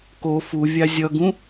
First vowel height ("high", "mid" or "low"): mid